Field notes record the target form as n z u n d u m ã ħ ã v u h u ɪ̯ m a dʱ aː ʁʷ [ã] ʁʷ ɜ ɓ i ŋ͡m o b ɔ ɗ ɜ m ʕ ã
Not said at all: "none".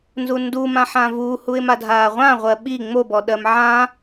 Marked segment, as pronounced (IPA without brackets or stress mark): ã